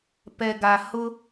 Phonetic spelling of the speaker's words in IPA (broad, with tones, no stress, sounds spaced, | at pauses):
p ɛ˨ ɡ a˨ h ʊ˦